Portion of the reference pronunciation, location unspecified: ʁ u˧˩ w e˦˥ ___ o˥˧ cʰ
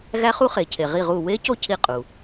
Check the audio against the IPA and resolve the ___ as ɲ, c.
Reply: c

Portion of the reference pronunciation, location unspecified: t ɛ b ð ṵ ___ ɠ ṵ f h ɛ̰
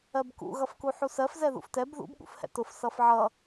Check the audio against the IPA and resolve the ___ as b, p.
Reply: b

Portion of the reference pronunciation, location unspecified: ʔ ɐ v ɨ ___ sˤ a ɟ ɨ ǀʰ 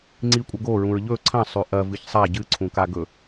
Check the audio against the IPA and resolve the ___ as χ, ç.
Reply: ç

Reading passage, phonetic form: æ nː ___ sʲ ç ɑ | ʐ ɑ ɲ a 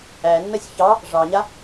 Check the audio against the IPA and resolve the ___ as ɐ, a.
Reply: ɐ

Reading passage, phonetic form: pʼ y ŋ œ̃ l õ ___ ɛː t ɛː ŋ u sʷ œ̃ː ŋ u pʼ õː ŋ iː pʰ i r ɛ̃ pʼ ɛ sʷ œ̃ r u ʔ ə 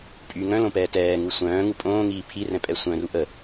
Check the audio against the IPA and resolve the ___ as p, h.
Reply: p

